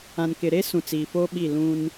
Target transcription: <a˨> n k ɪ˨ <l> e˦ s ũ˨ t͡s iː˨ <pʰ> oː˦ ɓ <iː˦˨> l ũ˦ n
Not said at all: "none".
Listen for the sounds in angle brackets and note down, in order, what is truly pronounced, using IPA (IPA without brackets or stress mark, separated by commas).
ã˨, ɾ, f, i˦˨